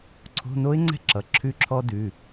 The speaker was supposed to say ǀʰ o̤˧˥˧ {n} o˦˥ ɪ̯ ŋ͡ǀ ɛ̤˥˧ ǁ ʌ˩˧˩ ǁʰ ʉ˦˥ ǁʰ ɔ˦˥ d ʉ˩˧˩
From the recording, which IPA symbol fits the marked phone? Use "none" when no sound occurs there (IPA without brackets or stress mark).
n